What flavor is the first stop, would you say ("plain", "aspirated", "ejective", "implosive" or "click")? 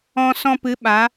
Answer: plain